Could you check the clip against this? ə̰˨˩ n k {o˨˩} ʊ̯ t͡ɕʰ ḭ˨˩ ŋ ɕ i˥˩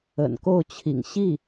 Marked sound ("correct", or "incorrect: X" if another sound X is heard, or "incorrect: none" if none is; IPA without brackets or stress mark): incorrect: o˥˩